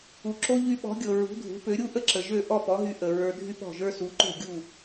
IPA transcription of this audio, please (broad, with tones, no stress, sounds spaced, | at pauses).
u˩ ǁ o˥ ʎ y˧ ɓ ɔ̤˩˥ ɡʲ ɤ˩ ɹ ṳ˩˥ dʱ ṳ˩˥ p ø˩˥ ɾʲ u˥ ʔ ə˥ ǁ ə˩ ʒ ø˥˩ ʔ ɔ˥˩ p ɔ˩˥ ɦ y˧ ʔ ə˩ ɹ ə˞˧ dʱ y˥ p ɔ̤˥˩ ʒ ə˞˥ s u˩˥ ǃ o̤˥˩ ɡʲ u˥˩